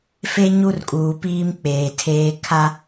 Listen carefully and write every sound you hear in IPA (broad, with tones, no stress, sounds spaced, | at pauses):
f e˦ ɲ u˦ r kʼ uː˨ p iː˦ m k͡p eː˨ tʰ eː˦ kʰ a˦